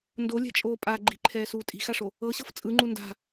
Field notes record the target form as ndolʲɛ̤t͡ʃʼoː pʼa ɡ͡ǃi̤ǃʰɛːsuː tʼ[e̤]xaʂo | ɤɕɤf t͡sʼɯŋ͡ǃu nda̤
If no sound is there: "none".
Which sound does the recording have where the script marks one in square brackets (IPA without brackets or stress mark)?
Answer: i̤